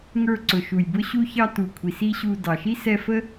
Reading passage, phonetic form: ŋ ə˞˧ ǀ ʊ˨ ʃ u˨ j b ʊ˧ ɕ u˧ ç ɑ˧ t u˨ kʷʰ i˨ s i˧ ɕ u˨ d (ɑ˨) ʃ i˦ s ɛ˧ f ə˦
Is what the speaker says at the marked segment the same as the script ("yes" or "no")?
yes